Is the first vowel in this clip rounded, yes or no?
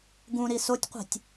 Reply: yes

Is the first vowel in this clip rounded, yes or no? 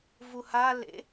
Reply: yes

